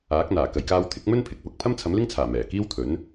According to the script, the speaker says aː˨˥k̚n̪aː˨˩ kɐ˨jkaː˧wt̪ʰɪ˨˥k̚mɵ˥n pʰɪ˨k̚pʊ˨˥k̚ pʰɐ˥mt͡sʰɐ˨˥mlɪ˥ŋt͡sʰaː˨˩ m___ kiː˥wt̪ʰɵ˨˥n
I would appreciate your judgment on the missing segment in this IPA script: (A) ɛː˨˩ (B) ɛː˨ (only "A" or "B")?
A